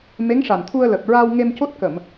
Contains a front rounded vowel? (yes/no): no